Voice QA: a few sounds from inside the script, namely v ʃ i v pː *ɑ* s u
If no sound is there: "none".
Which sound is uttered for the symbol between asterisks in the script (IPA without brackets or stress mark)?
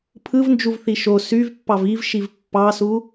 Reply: ɑ